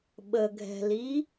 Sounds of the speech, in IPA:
ɓəɡʱɛ̤li

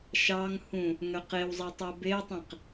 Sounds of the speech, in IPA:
ʃɑŋhũ | ŋœqewzˤe tˤebetˤẽq

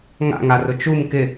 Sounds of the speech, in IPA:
ŋa̰ŋarʊ t͡ʃum kɪ

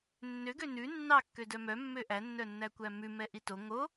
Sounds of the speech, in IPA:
nːøɡø nʉ nːɑkːødœ mœmːø ʔænːœnːækʷæ mʉmɛ ʔito ŋo

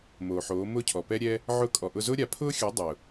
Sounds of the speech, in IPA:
moː˨ħoː˨˦mʊː˦ cʰɔ˨pɛ˦ɾʲɛ˦ | ʕʊː˧kʼɔ˨ʔʊ˧zʊː˦ ɾʲa˨pʰʊː˦xʲo˨˦ dˤʊː˨

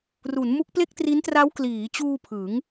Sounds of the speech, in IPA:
ru˩˦n mu˦˥k̚ple˥˩k̚tri˦˥n tra˦˥wkliː˩˦t͡ɕuː˧ pʰɯ˩˦ŋ

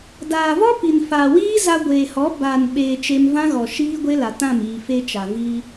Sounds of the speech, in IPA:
daː˨vɔ˦ pi˨nfaː˨wiː˦ za˧ɡʷeː˨hɔ˨˦ baː˨n ɓeː˨ t͡ʃe˧mvã˦ɣɔ˨ ʃiː˦ɡʷe˦la˨tã˦˨m iː˨fe˧t͡ʃa˨ viː˧

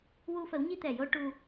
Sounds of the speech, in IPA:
wu˧fə˨˩˦wɲi˧ t̪ɛ˨˩jo˧ ʈu˧

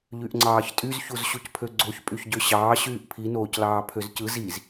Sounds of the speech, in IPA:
ʎyʔŋ͡ǀɑːçtʼyz çuzɕucpʰøɡ͡ǀoç pʼyçɟøɕɑː ɕyːʔpʰi noːclɑːpʰøzcɯ ziz

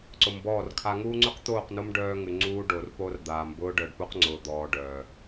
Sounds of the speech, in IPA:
ǀʊ˨mbɔː˦˨rkʰa˦ ŋuː˦ŋ͡ǀʉ˦qt̪oː˦˨qno˦m ɖœː˦ŋʉ˨ ŋ͡ǀuː˦ɖo˨rpo˦rd̪aː˨m bʊː˦ɖœ˨ɖpu˦q ŋ͡ǀʊː˨d̪ɔː˨ ɖœː˨

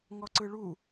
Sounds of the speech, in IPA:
ŋɔǀɯɭu

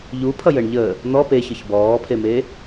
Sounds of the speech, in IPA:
ʎupʰʌjəɳ ʎə | n̪ɔ peçəç bɔːpʰeme

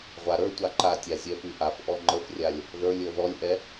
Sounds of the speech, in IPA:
ʁʷaɾə˞tʷa ǃatʲa zʲɛfyʔafʔɔ ŋ͡ǃəfrʲalʲ | ðə˞lʲ ə˞ðɔlʲʔɛ

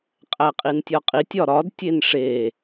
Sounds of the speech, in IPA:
qʼæqʼintʲɒqʼitʲ ɒɾɒd tʲenʂe

